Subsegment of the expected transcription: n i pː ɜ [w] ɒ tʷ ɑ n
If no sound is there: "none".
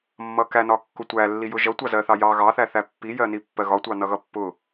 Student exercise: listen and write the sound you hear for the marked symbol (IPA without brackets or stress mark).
ɣ